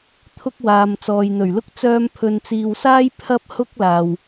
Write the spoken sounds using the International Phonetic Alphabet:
t̪ʰʊ˥k̚waː˨m t͡sɔː˨jn̪ɵ˨˩ɥlʊ˥k̚ t͡sœː˧mpʰɵ˨nt͡siː˨wsaː˥j pʰɐ˥p̚ hʊ˥k̚ laː˨˩w

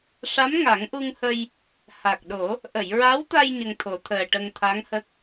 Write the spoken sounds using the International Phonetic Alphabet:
ʂa˧˥mŋa˨˩˦ŋʔu˧ŋhə˧j | ha˨˩k̚ɗo˨˩˦ | ʔə˨˩˨jɹa˧˥wt̪a˧j ɲə˧ŋt̪ʰo˨˩˦t̪ʰəː˨˩ʈə˧ŋ t̪ʰa˧˥ŋhə˦˥k̚

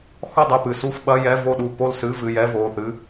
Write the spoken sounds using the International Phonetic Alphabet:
xɔ˥˨dˤɐ˥˨pɨ˩˧˩ su˥˨fɓɐ˧˥˧ jɛ˧˥˧vo˥˨ɗu˥˨ po˥˨lsɨ˧˥˧vɨ˩˧˩jɛ˧˥˧ vo˩˧˩θɨ˧˥˧

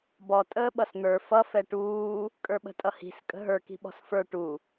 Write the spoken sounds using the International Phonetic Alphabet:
bɔ tʼəːɓʌsn̪ə˞ fʌ fɛʈuː | kʼə˞ɓə̤tʼʌhi̤s kʼə̤ɦə˞ ki̤ɓɔ̤sfə˞ ʈu

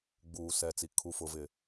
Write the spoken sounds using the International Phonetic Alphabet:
ɡ͡buː˨sɛ˨t͡si˨ kʰu˨fʊ˨vɪ˨

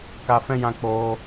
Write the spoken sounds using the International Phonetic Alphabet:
ka˧fɛ̃˦jã˧ k͡poː˧

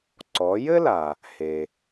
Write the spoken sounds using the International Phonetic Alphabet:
ǀɔ˩˧jɘ˥la˩ | he˩

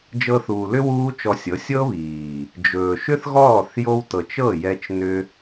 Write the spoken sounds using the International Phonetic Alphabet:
d͡ʒɤ˧θuː˨lʏ˦ wuː˦t͡ʃɔ˧sʲɤ˨˦ sʲɤ˦βiː˨ | d͡ʒɵː˨ʃʏ˦θɣɔː˦˨θ jo˧wtɤ˨t͡ʃ ɤ˦˨jɛ˧t͡ʃ nʏ˦

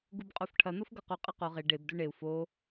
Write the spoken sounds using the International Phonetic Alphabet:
ɡubqʼofʈʰɐ n̪ofɡɐqu qʼɐqo ʁe ɖeb duɳeu̯ fo

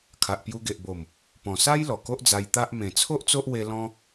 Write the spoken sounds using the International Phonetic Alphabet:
kʰa˨ʔpju˧ɡe˨ʔbo˨˩m | pɔ̃˨˩sa˦j lɔ˨˩ko˦ʔd͡za˧j t̪a˦ʔ mẽ˨˩t͡sʰo˦ʔ t͡so˦ʔwe˧ lɔ̃˧

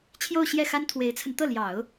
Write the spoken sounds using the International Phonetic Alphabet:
t͡ɕʰjo˥˧ʊ̯ɕjɛ˥˩xa˥n t̪ʰwe˧˥ɪ̯t͡sʰə˧n t̪ɤ˥˩ ljɑ˨˩˦ʊ̯

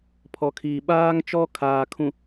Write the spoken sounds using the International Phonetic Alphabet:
pʰɔ˨kʰiː˨ ɓaː˦ŋt͡ʃɔ˦ kʰaː˨kʰũ˨

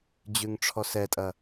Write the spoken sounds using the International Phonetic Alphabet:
d͡ʑʉŋʈ͡ʂʰɔsɛtʼɐ

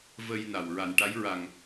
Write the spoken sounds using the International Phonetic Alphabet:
və˧jna˨˩w ɹa˨˩nʈa˧˥jɹa˨˩ŋ

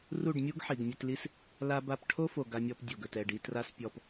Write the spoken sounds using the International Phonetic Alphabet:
ru˦˨ɖmʲu˦ɡ ħi˨ɡmʲɵ˧tli˦s | la˧ ba˧pʈʰo˦fo˨ ɡa˧mʲɔ˧p dʲo˨ɡɵ˨tɛ˦˨ɖi˧ tra˧s pʲɔ˧p

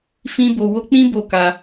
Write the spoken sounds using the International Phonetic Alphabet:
fĩ˧bo˨ wo˧k͡pĩ˦ bo˦˨ka˧

